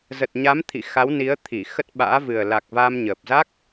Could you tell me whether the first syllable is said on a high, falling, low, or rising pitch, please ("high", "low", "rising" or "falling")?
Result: low